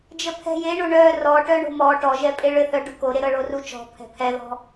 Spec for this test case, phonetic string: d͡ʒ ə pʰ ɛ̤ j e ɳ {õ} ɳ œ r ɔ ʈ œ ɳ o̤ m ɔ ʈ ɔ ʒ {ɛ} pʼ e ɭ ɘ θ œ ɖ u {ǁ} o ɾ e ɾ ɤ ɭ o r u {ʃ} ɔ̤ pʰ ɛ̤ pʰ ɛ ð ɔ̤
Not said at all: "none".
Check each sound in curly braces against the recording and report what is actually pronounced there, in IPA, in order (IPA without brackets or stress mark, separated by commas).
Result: o, ɛ, k, t͡ʃ